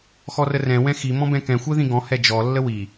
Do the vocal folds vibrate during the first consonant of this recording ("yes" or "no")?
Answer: no